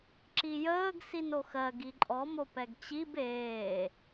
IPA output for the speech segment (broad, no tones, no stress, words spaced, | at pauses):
ǁijəːɡ sinoxɜɡ iǃʼɔ mopɛɡt͡ɕib eː